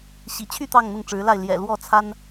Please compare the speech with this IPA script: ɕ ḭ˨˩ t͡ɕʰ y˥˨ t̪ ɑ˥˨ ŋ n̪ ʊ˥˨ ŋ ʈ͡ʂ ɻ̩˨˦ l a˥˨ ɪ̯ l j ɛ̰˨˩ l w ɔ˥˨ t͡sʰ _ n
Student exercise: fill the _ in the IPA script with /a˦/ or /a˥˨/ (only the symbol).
a˦